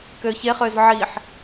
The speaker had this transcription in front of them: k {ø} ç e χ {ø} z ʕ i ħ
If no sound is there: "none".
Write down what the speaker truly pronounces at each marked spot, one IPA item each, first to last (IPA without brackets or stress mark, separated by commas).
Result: ø, ø